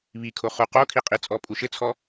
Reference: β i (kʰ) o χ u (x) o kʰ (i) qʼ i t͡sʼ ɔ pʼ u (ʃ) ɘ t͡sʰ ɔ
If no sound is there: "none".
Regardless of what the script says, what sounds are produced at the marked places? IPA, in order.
kʰ, q, i, ʃ

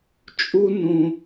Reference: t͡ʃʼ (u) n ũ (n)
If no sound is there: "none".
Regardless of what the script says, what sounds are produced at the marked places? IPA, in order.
u, none

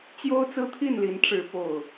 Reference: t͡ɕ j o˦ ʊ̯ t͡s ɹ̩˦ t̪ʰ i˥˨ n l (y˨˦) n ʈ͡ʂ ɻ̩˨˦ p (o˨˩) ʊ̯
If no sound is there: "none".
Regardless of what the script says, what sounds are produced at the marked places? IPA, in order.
i˨˦, o˨˩

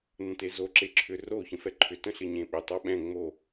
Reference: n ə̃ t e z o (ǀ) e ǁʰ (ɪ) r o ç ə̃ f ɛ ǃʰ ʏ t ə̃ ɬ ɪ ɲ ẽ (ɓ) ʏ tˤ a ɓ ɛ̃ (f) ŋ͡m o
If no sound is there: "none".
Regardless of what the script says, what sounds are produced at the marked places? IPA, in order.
ǁ, ʏ, ɓ, none

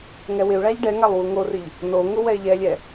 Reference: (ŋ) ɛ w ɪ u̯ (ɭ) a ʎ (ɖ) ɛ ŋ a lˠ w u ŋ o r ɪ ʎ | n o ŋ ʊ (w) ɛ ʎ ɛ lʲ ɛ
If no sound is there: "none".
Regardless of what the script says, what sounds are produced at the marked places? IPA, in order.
ŋ, ɭ, ɖ, w

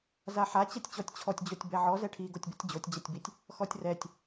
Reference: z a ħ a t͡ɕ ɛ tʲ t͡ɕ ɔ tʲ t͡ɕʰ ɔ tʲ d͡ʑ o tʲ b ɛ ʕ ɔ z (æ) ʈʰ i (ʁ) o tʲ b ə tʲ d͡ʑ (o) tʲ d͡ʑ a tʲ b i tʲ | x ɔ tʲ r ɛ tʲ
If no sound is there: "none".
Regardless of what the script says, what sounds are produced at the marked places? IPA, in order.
ɛ, ɡ, o

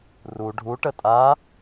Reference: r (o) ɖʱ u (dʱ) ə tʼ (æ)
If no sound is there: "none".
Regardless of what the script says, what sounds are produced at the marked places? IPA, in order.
u, ʈ, a

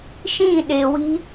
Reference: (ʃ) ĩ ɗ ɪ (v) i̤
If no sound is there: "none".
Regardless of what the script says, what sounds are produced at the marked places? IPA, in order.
ʃ, w

